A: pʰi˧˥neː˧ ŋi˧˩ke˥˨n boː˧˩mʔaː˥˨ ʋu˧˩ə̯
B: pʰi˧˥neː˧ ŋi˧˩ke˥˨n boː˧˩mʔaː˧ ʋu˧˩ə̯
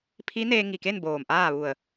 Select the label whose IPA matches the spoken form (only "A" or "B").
A